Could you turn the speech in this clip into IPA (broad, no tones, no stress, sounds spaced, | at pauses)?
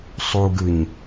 sˤ u ɡ ɯ ɲ